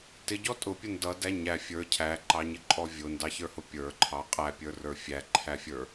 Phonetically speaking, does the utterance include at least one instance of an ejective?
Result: yes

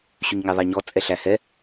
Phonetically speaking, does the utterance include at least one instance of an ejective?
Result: yes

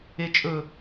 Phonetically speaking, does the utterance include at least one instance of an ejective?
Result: yes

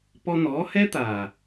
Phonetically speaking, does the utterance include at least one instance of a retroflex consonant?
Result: no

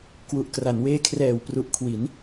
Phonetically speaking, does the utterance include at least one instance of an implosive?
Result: no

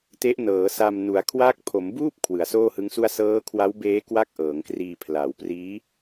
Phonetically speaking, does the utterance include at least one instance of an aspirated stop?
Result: yes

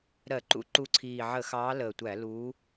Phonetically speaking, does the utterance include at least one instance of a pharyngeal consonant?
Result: yes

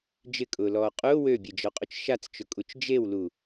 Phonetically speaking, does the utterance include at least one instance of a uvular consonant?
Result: yes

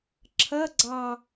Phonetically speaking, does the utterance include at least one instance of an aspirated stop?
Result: yes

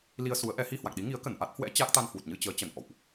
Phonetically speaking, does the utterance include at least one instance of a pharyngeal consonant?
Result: no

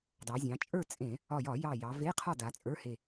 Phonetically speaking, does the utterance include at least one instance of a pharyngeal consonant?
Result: no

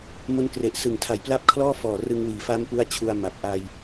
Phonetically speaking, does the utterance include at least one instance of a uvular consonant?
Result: no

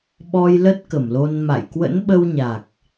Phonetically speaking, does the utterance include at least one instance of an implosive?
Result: yes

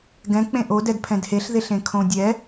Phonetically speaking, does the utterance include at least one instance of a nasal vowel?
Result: yes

